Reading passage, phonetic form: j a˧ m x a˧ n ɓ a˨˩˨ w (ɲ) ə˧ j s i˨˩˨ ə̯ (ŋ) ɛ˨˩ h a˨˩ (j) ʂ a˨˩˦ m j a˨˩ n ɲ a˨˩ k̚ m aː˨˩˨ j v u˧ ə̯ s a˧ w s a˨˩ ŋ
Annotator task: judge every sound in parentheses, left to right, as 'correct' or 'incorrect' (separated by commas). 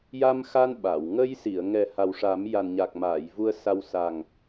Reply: incorrect, correct, incorrect